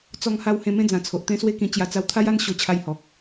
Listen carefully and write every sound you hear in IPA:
t͡s ɔ˧ ŋ h a˧ w h ẽ˧ m ẽ˥˧ d͡z ã˨˩ t͡sʰ o˨ ʔ t̪ ẽ˧ s w e˧ k ĩ˨˩ t͡ɕ j a˧ t͡s a˧ w t̪ʰ a˦ j a˧ n ɕ o˧ t͡ɕʰ a˧ j h ɔ˨ k̚

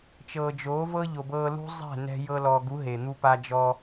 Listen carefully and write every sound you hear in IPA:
t͡ʃ ɤː˨ d͡ʒ oː˨˦ v ɤ˦ ʎ o˨ b ɤː˧ l ṳ˦ zˤ ɛ̤˦˨ n ɛ̤˧ j ɤ˧ l ɔ˨ ɡ u˨˦ ɦ e˨ n̪ u˦ p a˦ d͡ʒ ɔ˦

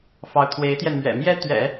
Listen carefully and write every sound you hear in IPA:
f ɑ˧˥ ʊ̯ t̪ʰ w e˧˥ ɪ̯ t̪ j ɛ˧ n m ɥ ɛ̰˨˩ m j ɛ˥ t̪ ɥ ɛ̰˨˩˦

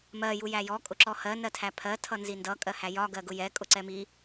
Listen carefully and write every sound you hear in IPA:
m ɜ j u j æ j ɔ kʼ ʊ ǁ ɔ h ɜ n ɜ tʰ æ pʰ ɜ tʰ ʌ n z i n d ʌ kʼ ɜ h æ j ɒ ɡ ɜ ɡ ʊ j ɛ kʼ ʊ ǀ ɛ m i

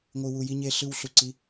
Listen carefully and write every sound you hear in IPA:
ŋʷ ɯ˨ w u˨ j i˦ ɲ e˦ ɬ ɯ˦ w ɬ u˨ ǀ i˨˦

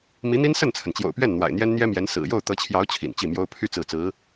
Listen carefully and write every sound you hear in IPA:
m i˧˥ n̪ i˥ n s ə˥˩ n t͡sʰ ə˩ n t͡ɕ j o̰˨˩ ʊ̯ p ɥ ɛ˥˩ n n̪ w a̰˨˩ ɪ̯ n̪ j ɛ˥ n n̪ j ɛ˥ m j ɛ˧˥ n s ɹ̩˨˩ j o˥˩ ʊ̯ t̪ ɤ˧˥ t͡ɕʰ j ɑ˧˥ ʊ̯ t͡ɕʰ ḭ˨˩ n t͡ɕ i˥˩ m j o˥ ʊ̯ pʰ y˥˧ t͡s ɹ̩˥˩ t͡s ɹ̩˧˥

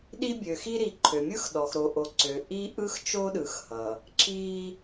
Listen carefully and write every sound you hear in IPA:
ɗ i˦ bʲ ø˨ x i˦ ɾ i˨ ǃʰ ø˨ mʲ ɯ˦ x ɗ ɔ˨ x ɾ o˨ ʔ o˨ ǀ ø˨ ʔ i˦ ʔ ɯ˦ x t͡ʃ o˦ ɗ ɯ˨ x h ʌ˨ | ǁ i˦

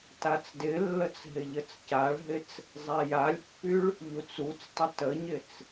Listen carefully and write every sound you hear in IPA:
t a t͡s d ɪ lː ə t͡s ɦ ɪ ʎ ə t͡s c a ɭ ɦ ɪ t͡s | zˤ ɛ j a lʲ pː y ɭ | ʎ u t͡s u t͡s tˤ ə t ə ɲ ɪ t͡s

